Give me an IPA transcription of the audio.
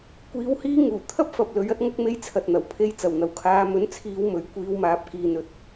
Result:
kʷ iː˧ w h iː˥ ŋ uː˨˩ t̪ʰ ɐ˥ p̚ f ɐ˨ p̚ l ɵ˨˧ ɥ ɐ˥ t̚ ŋ ɐ˥ k̚ m e˥ j t͡sʰ ɐ˨ t̚ n̪ ɐ˨˩ w pʰ e˧ j t͡s ɐ˨˩ w n̪ ɐ˨ w kʰ aː˧ m ɵ˨˥ n t͡sʰ iː˨˧ w m ɵ˨˥ ɥ kʷ iː˧ w m aː˨˥ p̚ k iː˨ n ɵ˨ t̚

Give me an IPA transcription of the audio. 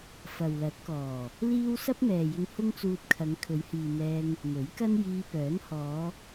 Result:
f ɐ˨ w l ɐ˨˥ t̚ k ɔː˨˩ | l iː˥ w s ɐ˥ p̚ m ɛː˨ j ɪ˧ ŋ h ʊ˥ ŋ t͡s uː˧ t̚ kʰ ɐ˨˧ ŋ kʰ ɵ˨˧ ɥ h iː˨ n̪ ɛː˧ ŋ | m ɵ˨˥ ɥ k ɐ˥ n j iː˧ p œː˨˥ n h ɔː˨˧

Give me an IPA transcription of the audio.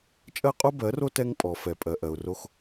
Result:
t͡ʃʼ ɜ˦ qʼ o˦ b ɜ˨˦ r o˦ t ɛ˦ ŋ pʼ ɔ˨ f ɛ˨ pʼ ɜ˨ ʔ ɜ˨ ʊ̯ r o˦ x

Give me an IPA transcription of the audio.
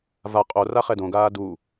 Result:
v a qʼ o r a χ ɛ d õ ɡ aː d u

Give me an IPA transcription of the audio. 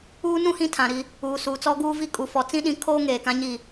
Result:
uː˦ n ũ˦ h ĩ˦ tʰ ã˨ ɾ i˦ | uː˨ s uː˨ t͡s ɔ˦ ɡ uː˦ v i˦ kʼ u˨ f ɔ˨ t͡s ĩ˦ ɗ ĩ˨˦ kʰ oː˦ ŋ eː˨ k ã˦ ɲ i˦˨

